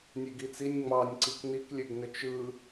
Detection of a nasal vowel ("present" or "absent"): absent